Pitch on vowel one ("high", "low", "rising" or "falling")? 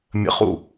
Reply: high